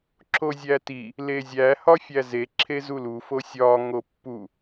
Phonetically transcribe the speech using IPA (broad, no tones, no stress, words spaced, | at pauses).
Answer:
ǁozʲæti | lezʲæ hɒfʲæze ǁʰezulu fosʲɒ ŋopːu